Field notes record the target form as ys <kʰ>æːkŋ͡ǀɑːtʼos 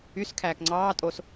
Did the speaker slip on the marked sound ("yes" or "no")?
no